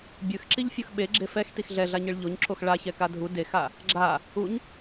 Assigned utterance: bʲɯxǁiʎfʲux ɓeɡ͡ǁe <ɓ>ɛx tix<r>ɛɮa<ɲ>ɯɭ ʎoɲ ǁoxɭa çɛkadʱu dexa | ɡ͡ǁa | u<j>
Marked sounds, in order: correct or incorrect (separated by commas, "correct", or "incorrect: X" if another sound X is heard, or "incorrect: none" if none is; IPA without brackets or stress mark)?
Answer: incorrect: f, incorrect: ɮ, correct, incorrect: ɲ